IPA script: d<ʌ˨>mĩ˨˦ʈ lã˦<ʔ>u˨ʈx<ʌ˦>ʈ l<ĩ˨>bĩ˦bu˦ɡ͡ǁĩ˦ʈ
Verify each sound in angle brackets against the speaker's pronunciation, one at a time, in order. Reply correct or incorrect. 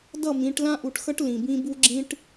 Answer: incorrect: ʌ˦˨, correct, correct, correct

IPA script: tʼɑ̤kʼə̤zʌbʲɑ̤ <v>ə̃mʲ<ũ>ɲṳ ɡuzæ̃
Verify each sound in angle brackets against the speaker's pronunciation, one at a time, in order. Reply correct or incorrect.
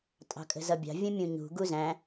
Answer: incorrect: vʲ, correct

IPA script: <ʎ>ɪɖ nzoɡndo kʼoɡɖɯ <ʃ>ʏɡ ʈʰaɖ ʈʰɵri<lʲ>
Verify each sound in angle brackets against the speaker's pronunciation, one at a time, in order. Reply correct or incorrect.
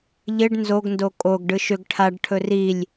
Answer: correct, correct, correct

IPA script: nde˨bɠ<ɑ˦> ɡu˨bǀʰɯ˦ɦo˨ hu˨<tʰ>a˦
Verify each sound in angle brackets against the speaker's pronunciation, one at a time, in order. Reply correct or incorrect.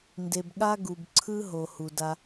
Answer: incorrect: a˦, incorrect: d

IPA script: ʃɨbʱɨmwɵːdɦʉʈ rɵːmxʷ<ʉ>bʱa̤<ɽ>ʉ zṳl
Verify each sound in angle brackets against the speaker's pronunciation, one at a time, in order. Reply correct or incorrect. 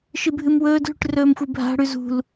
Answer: incorrect: ɨ, correct

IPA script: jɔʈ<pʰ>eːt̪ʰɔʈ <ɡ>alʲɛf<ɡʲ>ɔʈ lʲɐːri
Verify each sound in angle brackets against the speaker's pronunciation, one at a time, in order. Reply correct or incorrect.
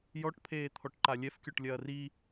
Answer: correct, incorrect: ǃ, incorrect: kʲ

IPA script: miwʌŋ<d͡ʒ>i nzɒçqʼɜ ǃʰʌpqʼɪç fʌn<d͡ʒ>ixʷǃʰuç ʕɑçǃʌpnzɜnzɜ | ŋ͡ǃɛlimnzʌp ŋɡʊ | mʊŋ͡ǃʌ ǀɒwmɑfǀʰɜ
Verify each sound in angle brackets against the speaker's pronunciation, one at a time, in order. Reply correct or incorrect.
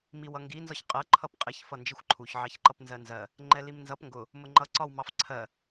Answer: incorrect: ɡ, correct

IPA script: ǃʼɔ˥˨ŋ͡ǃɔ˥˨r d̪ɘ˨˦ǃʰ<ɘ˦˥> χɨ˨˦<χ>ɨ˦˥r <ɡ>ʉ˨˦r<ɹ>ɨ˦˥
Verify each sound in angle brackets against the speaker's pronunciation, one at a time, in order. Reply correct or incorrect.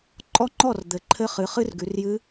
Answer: correct, correct, correct, incorrect: j

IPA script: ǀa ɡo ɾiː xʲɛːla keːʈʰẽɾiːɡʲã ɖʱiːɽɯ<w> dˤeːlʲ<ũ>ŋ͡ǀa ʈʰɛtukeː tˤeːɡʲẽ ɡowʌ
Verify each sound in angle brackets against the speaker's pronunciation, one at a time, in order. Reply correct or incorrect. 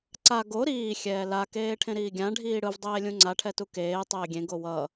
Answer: incorrect: v, correct

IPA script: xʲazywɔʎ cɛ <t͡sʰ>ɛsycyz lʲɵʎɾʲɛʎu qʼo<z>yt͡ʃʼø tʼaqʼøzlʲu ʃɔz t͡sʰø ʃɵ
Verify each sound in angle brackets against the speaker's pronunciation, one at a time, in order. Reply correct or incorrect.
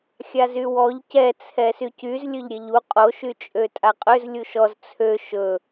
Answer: correct, incorrect: ʃ

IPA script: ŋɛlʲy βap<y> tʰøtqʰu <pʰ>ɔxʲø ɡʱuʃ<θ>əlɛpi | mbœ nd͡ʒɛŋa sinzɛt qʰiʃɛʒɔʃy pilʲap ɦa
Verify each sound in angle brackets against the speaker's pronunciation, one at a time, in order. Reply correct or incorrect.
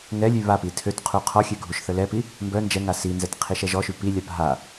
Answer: incorrect: i, incorrect: qʰ, correct

